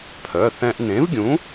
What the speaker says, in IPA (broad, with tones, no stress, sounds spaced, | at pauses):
pʰ œ˩˧˩ θ ɛ̃˧ ʔ n ẽ˨˥ v ɡʲ ũ˨˥